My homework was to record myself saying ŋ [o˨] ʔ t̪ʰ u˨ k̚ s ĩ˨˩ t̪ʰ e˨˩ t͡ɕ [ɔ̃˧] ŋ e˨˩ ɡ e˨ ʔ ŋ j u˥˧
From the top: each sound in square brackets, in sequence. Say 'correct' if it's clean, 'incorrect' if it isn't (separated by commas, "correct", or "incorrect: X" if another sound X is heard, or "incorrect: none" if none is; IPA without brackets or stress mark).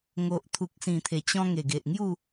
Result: correct, correct